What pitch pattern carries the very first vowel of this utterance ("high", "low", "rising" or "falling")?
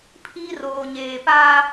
high